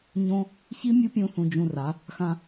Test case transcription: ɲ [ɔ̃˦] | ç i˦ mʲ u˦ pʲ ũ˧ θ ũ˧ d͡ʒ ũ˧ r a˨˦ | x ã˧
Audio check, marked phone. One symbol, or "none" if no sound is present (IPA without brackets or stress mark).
õ˦